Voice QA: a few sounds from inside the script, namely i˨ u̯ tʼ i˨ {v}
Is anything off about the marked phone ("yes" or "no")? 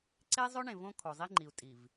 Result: no